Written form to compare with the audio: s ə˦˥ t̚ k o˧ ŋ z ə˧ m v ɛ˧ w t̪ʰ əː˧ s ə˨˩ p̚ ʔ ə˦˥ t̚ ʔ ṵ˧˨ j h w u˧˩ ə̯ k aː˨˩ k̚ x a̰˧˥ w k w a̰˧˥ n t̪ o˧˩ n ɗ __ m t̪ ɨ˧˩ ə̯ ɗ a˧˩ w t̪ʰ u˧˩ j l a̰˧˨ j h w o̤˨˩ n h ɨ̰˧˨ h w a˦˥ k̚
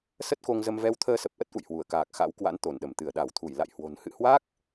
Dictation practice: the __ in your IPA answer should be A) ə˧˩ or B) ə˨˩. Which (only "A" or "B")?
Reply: A